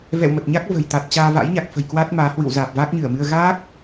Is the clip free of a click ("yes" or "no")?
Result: yes